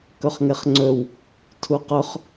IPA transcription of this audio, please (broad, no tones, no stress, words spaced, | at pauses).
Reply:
kɵχŋeχŋ͡ǀɵw | tʰuqɵχ